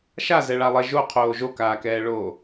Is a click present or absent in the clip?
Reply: absent